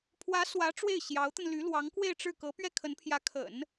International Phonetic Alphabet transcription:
pʰ w ä˧˥ s w ä˧˥ ʈ͡ʂ w e˥˩ ɪ̯ ɕ j ɑ˧˥ ʊ̯ t̪ ə˧ n l y˧˥ l w ɑ˧˥ ŋ k w e˥˧ ɪ̯ ʈ͡ʂ ɻ̩˥˩ k ɤ˧˥ p ɥ ɛ˥˩ kʰ ə˧˥ n pʰ j ä˧˥ kʰ ə̰˨˩˦ n

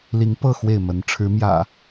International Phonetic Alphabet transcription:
l i˨˦ ŋ p ɤ˥˨ x w e˥˨ ɪ̯ m ə˨˦ n ʈ͡ʂʰ ɻ̩˨˦ m j ä̰˨˩

